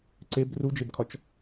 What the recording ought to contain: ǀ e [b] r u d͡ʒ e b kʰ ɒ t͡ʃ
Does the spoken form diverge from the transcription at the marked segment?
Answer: no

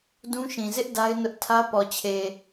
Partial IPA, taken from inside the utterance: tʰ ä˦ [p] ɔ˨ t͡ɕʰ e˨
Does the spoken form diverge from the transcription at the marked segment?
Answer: no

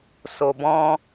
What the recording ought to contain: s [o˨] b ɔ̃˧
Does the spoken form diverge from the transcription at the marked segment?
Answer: no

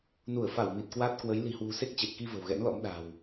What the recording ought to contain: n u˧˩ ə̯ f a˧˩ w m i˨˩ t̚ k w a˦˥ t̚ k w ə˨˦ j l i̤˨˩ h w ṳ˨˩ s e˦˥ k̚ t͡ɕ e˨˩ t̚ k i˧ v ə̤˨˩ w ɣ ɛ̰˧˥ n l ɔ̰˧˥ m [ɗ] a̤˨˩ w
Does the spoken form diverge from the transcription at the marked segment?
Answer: no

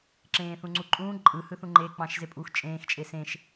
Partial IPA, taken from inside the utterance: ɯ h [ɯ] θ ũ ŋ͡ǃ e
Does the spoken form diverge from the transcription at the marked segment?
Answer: no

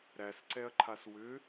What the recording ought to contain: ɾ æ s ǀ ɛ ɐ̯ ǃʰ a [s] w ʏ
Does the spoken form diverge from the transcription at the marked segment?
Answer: no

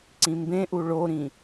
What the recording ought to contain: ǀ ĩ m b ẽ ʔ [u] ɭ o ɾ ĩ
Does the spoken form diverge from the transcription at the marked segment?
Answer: no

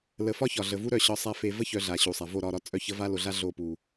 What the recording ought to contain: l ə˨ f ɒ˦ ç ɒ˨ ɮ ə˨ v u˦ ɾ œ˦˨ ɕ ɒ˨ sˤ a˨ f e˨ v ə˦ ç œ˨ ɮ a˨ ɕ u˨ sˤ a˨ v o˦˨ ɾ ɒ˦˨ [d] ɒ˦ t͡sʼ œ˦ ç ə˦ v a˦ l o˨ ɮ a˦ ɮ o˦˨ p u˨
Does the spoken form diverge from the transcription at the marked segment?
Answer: yes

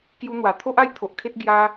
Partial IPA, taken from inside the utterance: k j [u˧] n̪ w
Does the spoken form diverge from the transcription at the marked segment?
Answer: no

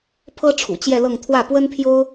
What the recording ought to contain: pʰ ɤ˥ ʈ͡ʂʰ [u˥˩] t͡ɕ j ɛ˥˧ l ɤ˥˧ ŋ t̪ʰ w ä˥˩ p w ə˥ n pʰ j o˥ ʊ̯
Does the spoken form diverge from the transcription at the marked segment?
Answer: yes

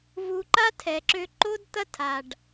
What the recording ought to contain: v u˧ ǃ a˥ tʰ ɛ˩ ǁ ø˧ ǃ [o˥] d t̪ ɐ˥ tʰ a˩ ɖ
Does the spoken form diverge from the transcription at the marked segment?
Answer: no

